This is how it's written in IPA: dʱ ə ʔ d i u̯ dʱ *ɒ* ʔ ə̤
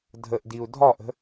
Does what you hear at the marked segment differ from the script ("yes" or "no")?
no